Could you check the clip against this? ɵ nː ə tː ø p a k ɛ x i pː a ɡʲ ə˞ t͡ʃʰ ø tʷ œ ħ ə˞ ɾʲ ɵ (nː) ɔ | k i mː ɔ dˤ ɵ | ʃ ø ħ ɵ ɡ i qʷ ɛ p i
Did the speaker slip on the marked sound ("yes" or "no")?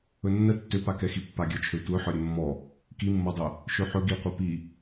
yes